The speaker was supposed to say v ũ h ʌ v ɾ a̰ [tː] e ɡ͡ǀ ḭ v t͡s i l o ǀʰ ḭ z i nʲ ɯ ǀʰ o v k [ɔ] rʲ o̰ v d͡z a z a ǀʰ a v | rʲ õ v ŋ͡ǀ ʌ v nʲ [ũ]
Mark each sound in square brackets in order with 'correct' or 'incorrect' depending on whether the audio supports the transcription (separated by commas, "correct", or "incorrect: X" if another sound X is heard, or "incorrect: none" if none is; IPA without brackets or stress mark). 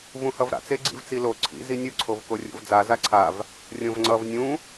incorrect: t͡s, incorrect: o, correct